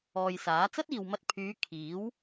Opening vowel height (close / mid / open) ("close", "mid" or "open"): mid